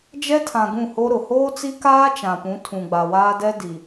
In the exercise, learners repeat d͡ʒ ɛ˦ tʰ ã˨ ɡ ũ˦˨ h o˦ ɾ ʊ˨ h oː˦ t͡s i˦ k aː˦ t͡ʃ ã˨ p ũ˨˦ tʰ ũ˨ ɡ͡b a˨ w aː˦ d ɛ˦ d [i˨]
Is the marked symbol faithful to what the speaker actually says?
yes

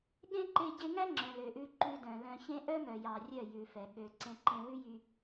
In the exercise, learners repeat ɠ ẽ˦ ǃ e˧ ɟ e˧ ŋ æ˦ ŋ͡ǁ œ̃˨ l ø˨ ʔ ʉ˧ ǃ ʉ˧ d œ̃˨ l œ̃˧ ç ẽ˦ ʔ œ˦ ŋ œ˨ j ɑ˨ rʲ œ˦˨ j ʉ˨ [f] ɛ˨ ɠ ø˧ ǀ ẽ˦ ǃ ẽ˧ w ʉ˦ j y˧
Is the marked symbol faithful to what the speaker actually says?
yes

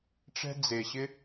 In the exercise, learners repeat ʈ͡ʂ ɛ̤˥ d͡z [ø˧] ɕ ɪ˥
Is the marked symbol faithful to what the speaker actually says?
no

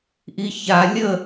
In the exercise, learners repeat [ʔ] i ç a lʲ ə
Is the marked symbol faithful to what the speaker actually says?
yes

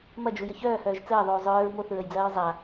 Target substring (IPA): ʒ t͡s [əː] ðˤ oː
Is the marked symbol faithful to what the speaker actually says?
yes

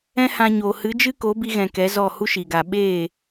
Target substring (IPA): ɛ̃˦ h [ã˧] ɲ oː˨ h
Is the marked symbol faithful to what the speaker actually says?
yes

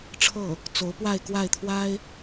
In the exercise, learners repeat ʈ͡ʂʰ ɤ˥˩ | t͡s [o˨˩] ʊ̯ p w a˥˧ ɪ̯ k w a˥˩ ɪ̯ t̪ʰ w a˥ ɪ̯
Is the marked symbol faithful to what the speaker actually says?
no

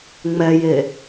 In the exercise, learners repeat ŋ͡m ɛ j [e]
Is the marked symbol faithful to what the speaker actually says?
yes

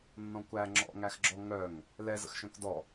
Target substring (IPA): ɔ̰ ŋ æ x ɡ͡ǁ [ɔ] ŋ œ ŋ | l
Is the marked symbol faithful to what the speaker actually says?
yes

